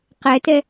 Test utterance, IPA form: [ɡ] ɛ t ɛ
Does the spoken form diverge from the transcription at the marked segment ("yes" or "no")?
yes